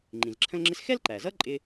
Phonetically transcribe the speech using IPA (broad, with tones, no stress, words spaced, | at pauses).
ŋ͡ǃĩ˩zǁʰə̃˥lŋ͡ǁɪ˥s xɛ˥lǃæ˩zʌ˥ ǃʼɪ˥